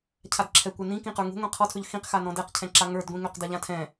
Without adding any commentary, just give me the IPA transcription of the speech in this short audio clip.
cʰ a d ǁʰ ɛ kʷ ɛ n ĩ k ĩ q ə˞ ŋ ṳ ŋʷ ĩ qʰ ɔ tʰ ɵ ʎ x ĩ q x a n ɔ̃ d ɛ q cʰ ɛ̃ ǁ a ŋ ə˞ d ɡʷ ĩ ŋ ø q d a ʎ ã tʰ ɛ̃

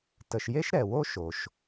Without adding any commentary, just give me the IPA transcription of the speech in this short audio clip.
t ə˩ ʃ j e˥ ʃ ɾ ɛ˩ w o˥ ʃ o˩ ʃ

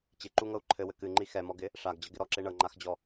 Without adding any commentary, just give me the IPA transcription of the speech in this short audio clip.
t͡ɕ ɪ ǃ u ŋ ɤ u̯ ǃʰ ɘ w ɘ k ɨ ŋ͡ǃ i x ɛ m ɔ ɡ ɪ | ʂ a ɡ d͡ʑ ɤ ɡ ɪ ɾ ɔ ǁ e ɳ ɤ ŋ͡ǃ a x d͡ʑ ɔ

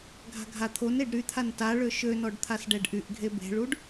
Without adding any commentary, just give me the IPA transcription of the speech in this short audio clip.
ɡʱ a̤ ɡʱ a t̪ʰ o n e ɖ ɾ y t̪ʰ a n t a ɭ ø ʃ ø n ɔ ɖ t̪ʰ a s ɖ ɛ ɖ ʔ y ʔ ɡʱ e b e̤ ɭ u ɖ

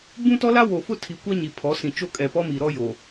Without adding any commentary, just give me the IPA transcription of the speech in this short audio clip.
b ũ˦ t ɔ˦ l a˦ w o˨ f ʊ˦ tʰ i˨ kʷ a˦ ɲ i˨ pʰ ɔ˨˦ s ĩ˨ t͡ʃ o˦ kʼ ɛ˨ p ɔ˦ m i˨ ɾ ɔ˦ j o˨

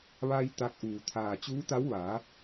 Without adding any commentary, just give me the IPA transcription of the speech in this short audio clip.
ʋ a˧ j t̪ a˧˥ k̚ ʔ uː˧˩ t̪ʰ aː˧˩ t͡ɕ uː˧˥ t̪ a˧˥ w ʋ a˩˧

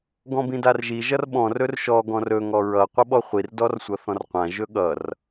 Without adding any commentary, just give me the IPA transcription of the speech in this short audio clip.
ɡ ɔ̃ b ĩ d a r ʒ i ʒ ʌ r ɓ ɔ̃ r ɵ r ʃ ɔ ɡ ɔ̃ r ɵ ŋ ɔ ɹ ʌ qʷ ʌ ɓ ɔ χʷ i r d ɔ r sʷ ʌ θ ɔ̃ r qʷ ã ʒ ɵ ɠ ʌ r

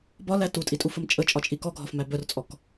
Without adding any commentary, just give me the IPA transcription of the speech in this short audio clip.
b ɒ l æ t u tʼ i tʼ u f ə m t͡ʃʼ ə t͡ʃʼ ɒ t͡ʃʼ i k ɔ ɡʱ ɒ f m æ b œ r t͡sʼ ɔ k

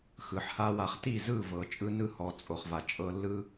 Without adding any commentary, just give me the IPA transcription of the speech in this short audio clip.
x ɯ˨ ħ h a˦ w a˧ χ t i˦˨ z ɯ˦˨ v ɤ˨ t͡ʃʼ ɯ˦ n ɯ˦ h ɔ˨ t͡sʼ o˨ χ v a˨ t͡ʃʼ ɤ˧ lː ɯ˦

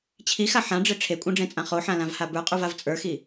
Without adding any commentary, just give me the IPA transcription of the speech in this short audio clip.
t͡ɕʰ i x a ħ ã ɖ͡ʐ e ʈ͡ʂʰ e kʷʼ ẽ ɖ͡ʐ ẽ t͡sʼ ã χ o ħ ã l ã v h a b ə˞ qʼ u v a v t͡sʼ ə˞ x i

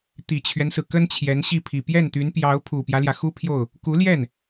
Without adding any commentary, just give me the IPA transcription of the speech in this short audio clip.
t̪ i˨˩ t͡ɕʰ ɥ ɛ˦ n s ɹ̩˩ k ə˥ n t͡ɕʰ j ɛ˧˥ n ɕ i˥˩ pʰ i˨˩ p j ɛ˥˩ n t̪ y˧˥ n p j ɑ˧˥ ʊ̯ pʰ u˨˩ p j ä˦ l j ä˩ x u˥ pʰ j o˥˩ ʊ̯ | k u˧˥ l j ɛ˥˩ n

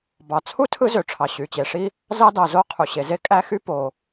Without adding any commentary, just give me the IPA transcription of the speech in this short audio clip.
b ɑ˩ t͡sʰ u˥ tʰ ɯ˥ z ø˩ ʈ͡ʂʰ ɑ˩ ɕ y˩ t͡ɕ e˩ ʂ i˥ | z ɑ˥ d ɑ˩ z o˥ qʰ u˩ ɕ e˩ z e˥ kʼ æ˥ x y˥ p o˩

